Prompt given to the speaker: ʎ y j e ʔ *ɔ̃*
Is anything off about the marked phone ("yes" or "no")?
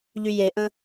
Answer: yes